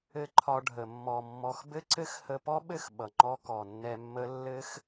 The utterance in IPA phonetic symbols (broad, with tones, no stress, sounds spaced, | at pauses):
ɘ˦ ǃʰ ɒ˧ ɖʱ ə˨ mː ɔ˨ mː ɔ˨ x b ɘ˦ ǀ ɘ˦ x h ə˧ p ɔ˦ ɓ ɘ˦˨ x ɓ ʌ˨ ŋ͡ǃ ɔ˦ k ɔ˨ nː ɛ˧ mː ə˦ lː ɘ˦ x